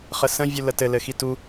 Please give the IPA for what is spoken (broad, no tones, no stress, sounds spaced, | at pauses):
χ ə s ə̃ vʲ u l ə t ɘ l ɘ x i t u